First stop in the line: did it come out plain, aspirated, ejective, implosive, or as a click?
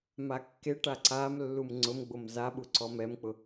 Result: plain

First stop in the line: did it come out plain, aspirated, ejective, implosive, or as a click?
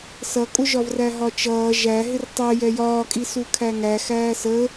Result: ejective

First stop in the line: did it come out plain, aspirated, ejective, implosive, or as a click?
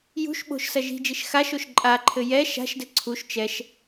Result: implosive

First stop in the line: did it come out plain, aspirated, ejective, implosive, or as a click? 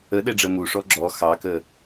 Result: implosive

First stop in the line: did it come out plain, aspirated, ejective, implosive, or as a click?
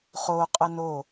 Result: ejective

